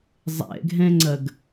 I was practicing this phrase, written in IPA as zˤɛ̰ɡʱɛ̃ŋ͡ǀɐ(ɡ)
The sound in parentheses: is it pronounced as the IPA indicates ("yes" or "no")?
yes